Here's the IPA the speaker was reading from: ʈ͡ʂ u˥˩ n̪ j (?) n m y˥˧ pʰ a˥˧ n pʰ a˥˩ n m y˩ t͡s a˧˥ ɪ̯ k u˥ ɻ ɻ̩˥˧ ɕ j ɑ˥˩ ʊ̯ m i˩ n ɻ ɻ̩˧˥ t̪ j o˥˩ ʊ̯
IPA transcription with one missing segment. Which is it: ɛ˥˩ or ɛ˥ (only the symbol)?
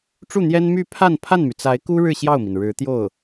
ɛ˥